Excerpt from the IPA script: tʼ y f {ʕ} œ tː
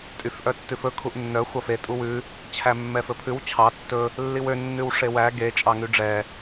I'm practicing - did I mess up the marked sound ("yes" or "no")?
yes